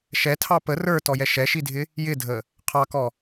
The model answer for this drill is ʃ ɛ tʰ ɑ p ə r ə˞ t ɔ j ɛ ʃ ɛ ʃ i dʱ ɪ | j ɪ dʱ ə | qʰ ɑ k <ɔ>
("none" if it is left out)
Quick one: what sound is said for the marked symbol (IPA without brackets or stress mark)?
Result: ɔ